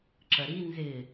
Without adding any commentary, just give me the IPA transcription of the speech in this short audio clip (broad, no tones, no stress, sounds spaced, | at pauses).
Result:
ǁ ɜ ɾ i n z ɪː